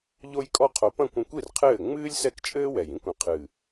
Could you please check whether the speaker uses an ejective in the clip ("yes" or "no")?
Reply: yes